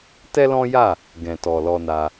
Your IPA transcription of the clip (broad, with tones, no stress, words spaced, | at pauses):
tɛ˦lɔ̃˦ja˦˨ | ɡɛ̃˨tɔ˨lɔ˧na˧